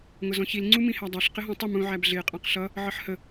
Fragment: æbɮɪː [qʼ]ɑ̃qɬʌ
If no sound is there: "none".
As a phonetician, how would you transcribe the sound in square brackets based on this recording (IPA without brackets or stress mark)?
qʼ